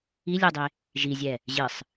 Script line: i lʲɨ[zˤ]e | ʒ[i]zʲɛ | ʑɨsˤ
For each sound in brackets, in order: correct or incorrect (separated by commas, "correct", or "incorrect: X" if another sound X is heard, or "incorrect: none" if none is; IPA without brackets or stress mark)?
incorrect: dˤ, correct